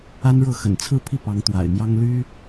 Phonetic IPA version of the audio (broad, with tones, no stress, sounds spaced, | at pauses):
a˥ n ɻ ɤ˥˩ x ə̰˨˩ n t͡sʰ ɹ̩˥˧ pʰ i˥˩ p ɑ˧˥ ŋ t̪ w a̰˨˩ ɪ̯ m j ɑ˥ ŋ l y˥